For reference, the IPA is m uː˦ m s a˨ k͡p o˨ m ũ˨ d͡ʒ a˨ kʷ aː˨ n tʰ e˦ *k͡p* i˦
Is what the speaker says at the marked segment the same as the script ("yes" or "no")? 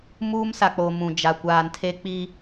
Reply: yes